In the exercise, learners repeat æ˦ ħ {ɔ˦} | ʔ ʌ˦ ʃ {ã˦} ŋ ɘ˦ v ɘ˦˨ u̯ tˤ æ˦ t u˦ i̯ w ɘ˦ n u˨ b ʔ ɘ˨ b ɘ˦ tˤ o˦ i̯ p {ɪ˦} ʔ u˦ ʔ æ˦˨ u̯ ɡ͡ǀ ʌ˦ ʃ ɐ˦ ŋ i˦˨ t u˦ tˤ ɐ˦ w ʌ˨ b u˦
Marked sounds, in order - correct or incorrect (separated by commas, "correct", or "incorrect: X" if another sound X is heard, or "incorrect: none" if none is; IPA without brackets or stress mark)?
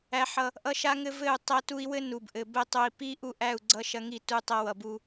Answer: incorrect: ʌ˦, incorrect: a˦, incorrect: i˦